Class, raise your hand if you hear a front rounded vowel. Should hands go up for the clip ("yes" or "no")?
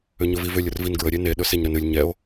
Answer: yes